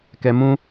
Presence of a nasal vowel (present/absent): present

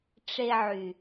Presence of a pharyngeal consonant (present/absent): present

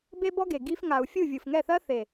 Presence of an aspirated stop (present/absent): absent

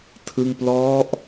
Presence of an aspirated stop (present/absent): present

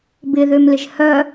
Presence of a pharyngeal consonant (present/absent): absent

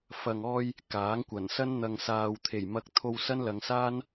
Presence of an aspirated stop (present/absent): present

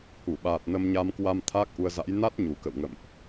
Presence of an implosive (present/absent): present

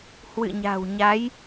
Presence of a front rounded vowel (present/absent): absent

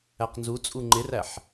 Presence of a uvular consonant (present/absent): present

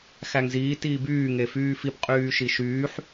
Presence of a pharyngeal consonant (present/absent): present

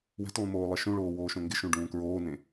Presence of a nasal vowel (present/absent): present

